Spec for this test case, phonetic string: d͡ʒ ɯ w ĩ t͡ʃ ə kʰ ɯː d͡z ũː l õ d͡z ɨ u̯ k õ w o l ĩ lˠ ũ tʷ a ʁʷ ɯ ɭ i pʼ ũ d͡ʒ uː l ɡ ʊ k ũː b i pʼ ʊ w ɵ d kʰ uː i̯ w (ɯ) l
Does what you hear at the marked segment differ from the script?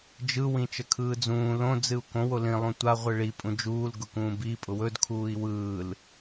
yes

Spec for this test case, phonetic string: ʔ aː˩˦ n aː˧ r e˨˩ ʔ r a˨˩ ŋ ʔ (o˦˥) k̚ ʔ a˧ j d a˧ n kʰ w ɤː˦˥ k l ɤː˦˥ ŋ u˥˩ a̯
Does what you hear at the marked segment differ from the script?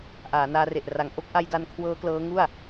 no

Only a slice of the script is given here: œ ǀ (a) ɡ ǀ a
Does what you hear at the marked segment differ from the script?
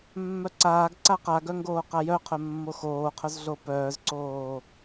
yes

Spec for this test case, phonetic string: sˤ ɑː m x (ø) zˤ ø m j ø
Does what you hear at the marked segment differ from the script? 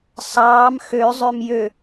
no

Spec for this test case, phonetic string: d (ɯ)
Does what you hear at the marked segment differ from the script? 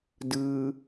no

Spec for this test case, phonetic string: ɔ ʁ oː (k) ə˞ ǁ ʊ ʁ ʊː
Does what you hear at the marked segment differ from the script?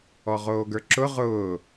yes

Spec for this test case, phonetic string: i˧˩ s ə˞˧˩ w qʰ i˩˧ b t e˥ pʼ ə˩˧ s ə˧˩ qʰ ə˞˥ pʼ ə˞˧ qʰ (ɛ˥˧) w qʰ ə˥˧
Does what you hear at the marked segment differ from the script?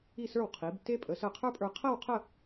yes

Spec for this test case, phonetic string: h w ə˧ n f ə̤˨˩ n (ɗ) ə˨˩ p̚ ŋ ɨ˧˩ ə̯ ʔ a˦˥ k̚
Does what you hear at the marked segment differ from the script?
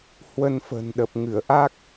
no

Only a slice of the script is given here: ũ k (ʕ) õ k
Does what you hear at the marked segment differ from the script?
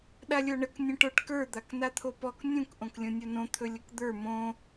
yes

